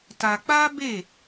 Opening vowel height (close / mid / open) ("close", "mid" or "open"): open